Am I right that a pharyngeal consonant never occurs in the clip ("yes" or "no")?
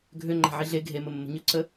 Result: no